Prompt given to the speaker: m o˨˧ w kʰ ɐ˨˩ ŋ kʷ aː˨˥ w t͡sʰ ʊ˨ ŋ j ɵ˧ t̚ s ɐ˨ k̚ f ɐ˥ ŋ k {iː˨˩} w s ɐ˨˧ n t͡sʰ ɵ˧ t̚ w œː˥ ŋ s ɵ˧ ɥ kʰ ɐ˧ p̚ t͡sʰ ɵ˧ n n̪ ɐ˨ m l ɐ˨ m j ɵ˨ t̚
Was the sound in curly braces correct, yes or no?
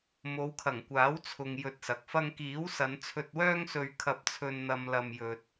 no